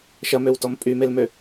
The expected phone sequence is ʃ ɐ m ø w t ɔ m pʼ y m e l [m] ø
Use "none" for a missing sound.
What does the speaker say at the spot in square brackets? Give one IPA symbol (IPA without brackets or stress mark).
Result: m